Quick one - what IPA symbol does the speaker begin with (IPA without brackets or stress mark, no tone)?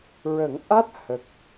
ɹ